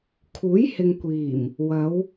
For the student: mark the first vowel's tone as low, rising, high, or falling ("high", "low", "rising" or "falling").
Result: rising